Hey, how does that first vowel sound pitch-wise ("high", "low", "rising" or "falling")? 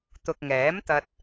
low